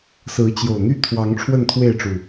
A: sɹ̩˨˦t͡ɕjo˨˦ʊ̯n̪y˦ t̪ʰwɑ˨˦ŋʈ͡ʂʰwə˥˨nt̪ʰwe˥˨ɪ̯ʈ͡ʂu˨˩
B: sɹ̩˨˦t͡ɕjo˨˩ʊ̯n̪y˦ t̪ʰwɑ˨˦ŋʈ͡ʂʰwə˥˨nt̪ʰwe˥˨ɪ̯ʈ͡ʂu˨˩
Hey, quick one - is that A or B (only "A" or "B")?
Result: B